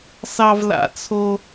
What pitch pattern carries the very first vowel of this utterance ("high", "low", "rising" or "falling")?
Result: high